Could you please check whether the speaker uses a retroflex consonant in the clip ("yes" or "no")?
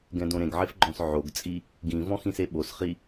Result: no